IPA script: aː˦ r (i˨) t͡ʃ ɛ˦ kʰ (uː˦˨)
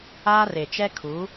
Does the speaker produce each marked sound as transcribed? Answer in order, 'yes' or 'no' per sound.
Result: no, no

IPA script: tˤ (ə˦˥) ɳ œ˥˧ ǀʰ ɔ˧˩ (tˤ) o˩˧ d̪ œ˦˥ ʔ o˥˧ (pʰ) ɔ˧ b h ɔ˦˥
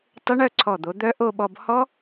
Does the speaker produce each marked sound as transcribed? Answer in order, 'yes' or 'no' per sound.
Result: yes, no, no

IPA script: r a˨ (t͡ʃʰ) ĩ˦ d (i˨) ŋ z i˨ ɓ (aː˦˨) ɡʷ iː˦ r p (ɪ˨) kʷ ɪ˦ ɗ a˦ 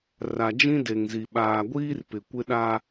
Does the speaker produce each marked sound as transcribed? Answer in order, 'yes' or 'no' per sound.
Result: no, no, no, yes

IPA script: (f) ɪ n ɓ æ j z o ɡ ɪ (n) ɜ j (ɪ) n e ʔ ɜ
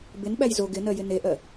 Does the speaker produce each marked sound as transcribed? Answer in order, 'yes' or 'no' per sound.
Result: no, yes, yes

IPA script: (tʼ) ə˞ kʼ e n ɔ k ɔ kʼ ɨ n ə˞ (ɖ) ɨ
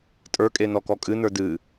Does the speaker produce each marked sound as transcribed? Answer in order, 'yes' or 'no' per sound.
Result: yes, no

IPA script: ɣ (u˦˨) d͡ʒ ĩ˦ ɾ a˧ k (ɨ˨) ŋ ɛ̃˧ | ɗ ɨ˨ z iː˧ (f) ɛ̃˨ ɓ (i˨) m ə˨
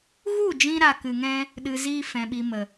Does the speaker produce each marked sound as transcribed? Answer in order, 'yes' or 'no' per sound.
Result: yes, yes, yes, yes

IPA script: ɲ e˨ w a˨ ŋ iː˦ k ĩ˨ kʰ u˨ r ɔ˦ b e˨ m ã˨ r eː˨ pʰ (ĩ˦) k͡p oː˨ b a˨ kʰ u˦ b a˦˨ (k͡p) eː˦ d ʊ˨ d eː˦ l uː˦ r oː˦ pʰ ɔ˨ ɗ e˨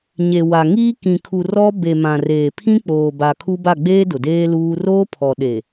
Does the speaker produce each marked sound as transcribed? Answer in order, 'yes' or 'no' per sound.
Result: yes, no

